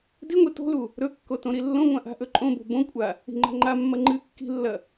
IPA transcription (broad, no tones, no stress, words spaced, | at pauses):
diŋʷi to̤lu | ɾɵkːo tõɾilːõŋʷã ʔa̤ʔɵǃʼõbo̤ bõkʷʼa | i̤ŋ͡ǃa̤ŋ͡ǃamːɐ ŋ͡ǃɨ kːi̤lːɐ